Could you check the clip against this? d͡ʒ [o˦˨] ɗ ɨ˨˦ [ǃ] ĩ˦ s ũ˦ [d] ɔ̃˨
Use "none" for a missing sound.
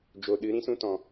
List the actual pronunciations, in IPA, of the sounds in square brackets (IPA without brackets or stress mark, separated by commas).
o˨, ɾ, t